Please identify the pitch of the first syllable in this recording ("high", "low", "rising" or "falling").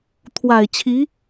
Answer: low